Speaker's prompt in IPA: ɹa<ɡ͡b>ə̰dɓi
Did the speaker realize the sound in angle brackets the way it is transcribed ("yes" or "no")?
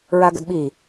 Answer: no